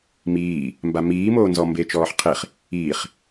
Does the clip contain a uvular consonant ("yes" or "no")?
yes